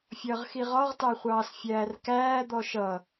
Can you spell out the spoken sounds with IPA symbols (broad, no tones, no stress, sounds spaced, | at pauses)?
fʲ ʌː ʁ x i ʁ ɒ ʁ t ɑ χʷ ɑː s fʲ æː r k æː d̪ ɔ ʃ ʌ